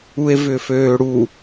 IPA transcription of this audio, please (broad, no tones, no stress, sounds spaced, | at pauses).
u e̯ v ʏ f øː ɽ u